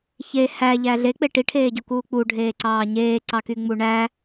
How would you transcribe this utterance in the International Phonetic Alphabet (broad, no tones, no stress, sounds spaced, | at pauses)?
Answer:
ç e h æ ʎ æ ɮ e k͡p e ʈ i ʈʰ eː ɟ o k uː k͡p u ɖʱ eː ǀ ɑː ɲ eː ǀ ɑ k y ŋ͡m u ɳ æ